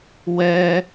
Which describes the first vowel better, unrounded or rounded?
unrounded